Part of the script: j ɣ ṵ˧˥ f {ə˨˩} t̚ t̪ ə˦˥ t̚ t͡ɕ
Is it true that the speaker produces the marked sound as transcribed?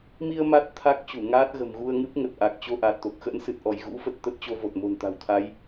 yes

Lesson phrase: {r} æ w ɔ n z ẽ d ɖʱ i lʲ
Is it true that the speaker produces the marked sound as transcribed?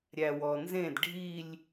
no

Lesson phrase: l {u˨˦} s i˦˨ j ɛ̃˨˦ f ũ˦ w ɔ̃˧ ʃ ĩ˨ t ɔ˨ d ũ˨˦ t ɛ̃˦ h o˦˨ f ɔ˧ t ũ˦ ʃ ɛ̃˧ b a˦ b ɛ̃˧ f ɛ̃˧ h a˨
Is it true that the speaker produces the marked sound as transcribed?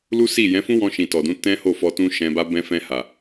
no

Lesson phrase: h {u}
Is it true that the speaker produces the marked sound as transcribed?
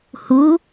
yes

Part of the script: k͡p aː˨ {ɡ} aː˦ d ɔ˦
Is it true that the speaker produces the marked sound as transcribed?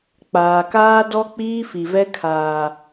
no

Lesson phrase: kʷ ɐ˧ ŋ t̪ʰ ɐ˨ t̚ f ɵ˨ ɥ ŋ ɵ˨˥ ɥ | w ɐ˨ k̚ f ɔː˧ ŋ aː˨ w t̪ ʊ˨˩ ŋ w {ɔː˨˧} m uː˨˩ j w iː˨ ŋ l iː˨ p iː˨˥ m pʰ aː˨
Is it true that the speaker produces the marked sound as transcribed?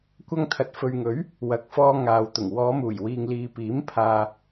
yes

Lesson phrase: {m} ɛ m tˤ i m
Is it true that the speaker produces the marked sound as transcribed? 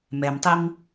yes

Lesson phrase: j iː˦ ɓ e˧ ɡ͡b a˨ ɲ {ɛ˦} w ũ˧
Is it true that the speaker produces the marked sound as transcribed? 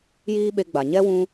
yes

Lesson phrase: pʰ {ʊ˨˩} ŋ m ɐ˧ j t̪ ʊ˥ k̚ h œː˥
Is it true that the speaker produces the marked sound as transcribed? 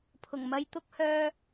yes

